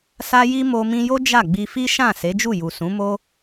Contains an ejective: no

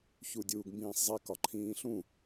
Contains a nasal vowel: yes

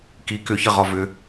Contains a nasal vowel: no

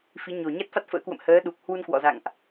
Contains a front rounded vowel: no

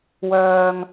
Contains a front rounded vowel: yes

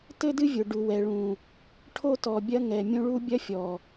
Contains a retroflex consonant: yes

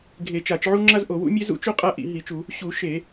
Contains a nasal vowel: no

